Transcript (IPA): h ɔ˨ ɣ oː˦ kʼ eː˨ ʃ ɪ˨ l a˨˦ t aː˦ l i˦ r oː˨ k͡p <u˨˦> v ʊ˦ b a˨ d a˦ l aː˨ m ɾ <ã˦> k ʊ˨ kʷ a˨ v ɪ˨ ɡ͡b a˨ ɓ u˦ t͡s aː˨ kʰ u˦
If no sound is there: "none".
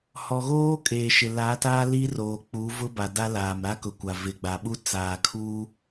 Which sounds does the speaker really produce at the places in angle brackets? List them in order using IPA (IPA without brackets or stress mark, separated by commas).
u˨˦, a˦